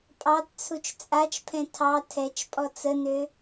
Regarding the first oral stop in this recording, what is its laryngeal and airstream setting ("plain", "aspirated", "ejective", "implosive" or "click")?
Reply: ejective